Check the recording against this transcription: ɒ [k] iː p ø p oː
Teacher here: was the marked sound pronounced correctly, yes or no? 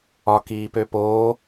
yes